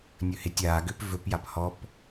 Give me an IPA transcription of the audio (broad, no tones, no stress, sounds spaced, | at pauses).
nʲ ɵ h e tʲ aː ɡ ʏː p v ɵ p j a p h ɔ p